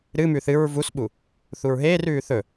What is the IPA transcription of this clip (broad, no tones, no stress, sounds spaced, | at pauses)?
ɾ ɨ m ʉ θ ɨ ɹ v u s ɓ u | θ u ɹ ɦ eː r ʉː θ ɵ